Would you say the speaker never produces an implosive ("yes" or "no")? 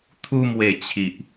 yes